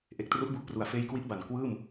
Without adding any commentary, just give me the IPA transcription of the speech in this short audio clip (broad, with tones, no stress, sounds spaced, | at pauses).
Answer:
ʔ e˨˩ k̚ t r u˦˥ ʔ b u˦˥ ʔ p r u˨˩ a̯ f eː˧ j k w i˦˥ ʔ b a˨˩ n k w ɯː˥˩ m